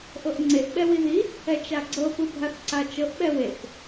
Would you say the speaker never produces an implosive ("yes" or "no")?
no